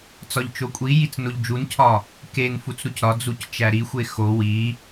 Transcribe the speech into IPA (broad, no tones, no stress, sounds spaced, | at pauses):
t͡s ɒ ʎ t͡ʃ o kʷʼ i j i t͡s n o ʎ d͡ʒ u n cʰ ɒ | k e n f u t͡s ɾ u c ɾ ɒ d͡z u c t͡ʃ æ ɾ i xʷ e x o w i